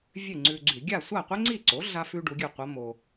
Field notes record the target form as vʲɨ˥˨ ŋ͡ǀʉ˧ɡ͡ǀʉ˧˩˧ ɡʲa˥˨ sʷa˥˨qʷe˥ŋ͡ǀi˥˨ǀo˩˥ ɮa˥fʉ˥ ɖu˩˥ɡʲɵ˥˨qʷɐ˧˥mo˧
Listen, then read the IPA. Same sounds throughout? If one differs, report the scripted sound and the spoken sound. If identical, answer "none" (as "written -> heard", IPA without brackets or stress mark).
none